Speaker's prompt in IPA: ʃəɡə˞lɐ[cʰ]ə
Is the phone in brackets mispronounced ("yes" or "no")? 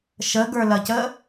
yes